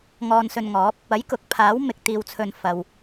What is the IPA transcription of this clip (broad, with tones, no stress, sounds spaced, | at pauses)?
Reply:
ŋ ɔː˧ n s ɵ˧ n ŋ ɔː˨˥ p̚ | ɐ˨˥ j k ʊ˨ k̚ pʰ aː˨˥ w m ɪ˧ k̚ t̪ iː˧ w t͡sʰ ɵ˧ n f ɐ˨ w